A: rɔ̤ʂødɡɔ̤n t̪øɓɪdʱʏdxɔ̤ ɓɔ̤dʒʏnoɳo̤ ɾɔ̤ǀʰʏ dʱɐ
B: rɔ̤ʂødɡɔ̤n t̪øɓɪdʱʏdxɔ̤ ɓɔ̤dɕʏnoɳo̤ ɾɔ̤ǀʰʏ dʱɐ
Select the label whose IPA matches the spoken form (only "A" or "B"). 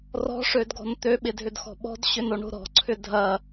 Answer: B